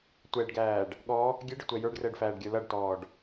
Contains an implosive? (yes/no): yes